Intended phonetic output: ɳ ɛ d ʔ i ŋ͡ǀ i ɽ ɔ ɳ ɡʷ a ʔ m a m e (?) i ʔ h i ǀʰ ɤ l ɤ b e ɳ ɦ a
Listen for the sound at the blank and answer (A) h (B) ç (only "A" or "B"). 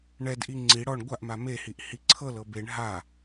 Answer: A